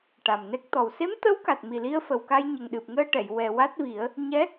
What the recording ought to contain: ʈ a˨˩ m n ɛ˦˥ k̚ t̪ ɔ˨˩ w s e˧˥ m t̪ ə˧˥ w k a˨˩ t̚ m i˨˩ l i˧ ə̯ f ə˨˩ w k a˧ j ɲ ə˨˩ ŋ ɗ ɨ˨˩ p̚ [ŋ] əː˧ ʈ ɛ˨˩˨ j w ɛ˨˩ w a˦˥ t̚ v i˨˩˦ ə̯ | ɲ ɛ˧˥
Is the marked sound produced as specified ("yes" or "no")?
yes